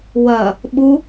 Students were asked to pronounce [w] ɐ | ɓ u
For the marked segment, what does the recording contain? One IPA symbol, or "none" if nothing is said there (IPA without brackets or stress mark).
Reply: w